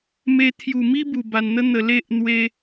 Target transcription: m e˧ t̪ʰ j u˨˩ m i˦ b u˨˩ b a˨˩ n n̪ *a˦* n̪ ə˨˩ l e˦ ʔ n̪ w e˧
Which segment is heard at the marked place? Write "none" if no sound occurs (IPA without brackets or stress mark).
ə˦